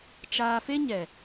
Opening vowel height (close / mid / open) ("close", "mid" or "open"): open